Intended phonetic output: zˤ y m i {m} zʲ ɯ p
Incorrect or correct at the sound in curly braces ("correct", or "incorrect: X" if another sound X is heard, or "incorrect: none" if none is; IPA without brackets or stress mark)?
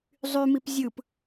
incorrect: p